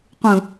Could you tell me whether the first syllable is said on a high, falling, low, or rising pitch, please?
low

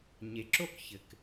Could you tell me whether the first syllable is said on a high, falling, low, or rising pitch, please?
low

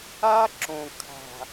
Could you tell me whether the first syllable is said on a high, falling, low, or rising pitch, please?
high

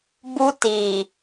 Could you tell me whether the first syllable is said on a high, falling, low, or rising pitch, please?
high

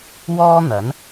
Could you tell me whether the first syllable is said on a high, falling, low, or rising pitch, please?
high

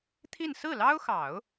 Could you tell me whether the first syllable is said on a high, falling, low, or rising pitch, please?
falling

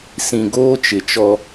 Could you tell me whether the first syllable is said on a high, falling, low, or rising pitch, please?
low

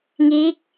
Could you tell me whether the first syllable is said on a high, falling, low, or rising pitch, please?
rising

